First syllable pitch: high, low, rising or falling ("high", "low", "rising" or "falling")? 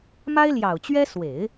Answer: high